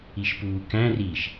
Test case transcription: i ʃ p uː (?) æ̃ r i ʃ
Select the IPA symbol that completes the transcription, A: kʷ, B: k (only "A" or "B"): B